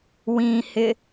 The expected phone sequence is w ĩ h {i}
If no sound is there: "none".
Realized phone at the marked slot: ɪ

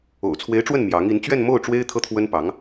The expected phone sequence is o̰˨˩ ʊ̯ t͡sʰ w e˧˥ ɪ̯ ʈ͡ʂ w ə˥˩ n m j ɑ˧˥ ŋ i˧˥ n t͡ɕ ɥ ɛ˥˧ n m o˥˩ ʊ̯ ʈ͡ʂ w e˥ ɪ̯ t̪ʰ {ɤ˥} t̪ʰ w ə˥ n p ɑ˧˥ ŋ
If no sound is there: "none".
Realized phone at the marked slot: ɤ˥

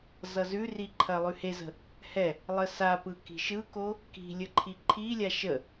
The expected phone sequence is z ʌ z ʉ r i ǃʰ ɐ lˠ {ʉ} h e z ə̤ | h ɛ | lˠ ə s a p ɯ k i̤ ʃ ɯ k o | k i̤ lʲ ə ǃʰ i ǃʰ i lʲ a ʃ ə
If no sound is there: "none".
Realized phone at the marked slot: ʉ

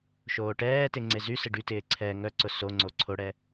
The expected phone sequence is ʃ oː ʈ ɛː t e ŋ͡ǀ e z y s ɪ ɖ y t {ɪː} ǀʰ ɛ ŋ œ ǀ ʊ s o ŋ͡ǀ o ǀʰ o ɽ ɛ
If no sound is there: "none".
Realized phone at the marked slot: ɪː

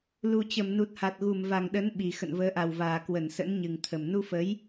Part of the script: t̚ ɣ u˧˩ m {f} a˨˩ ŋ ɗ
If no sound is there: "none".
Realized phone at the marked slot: v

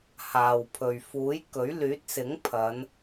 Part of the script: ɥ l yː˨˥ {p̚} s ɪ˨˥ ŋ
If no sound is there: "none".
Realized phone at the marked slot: t̚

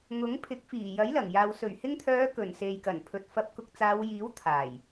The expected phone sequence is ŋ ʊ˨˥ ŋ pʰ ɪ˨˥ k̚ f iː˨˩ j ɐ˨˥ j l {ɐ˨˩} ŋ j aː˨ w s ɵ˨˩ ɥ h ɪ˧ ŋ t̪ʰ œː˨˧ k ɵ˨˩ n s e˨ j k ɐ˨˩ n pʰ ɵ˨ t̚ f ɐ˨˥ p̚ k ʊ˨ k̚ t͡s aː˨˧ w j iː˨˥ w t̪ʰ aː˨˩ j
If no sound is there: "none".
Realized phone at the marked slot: ɐ˨˩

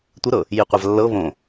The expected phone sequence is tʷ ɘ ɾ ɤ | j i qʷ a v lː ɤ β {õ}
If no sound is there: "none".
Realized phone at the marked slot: õ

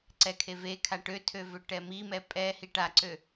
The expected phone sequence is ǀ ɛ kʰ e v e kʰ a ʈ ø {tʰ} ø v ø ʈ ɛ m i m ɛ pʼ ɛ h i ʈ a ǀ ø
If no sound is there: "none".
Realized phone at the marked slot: tʰ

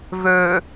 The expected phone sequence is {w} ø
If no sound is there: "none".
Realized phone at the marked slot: v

